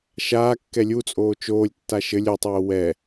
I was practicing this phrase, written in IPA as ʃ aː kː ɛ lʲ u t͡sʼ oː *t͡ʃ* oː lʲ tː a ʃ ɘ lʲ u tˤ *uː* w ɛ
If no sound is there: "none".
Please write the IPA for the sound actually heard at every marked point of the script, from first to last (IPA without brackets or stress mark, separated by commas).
t͡ʃ, oː